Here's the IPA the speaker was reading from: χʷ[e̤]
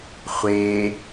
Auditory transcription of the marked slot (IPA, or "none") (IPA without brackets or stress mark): e